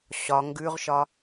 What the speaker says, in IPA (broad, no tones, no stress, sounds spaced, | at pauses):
ɕ ɒ ŋ ɡ ʉ ʁ ʃ ɒ